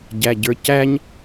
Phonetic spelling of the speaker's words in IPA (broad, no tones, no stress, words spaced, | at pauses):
ɟæɟə˞cæɲ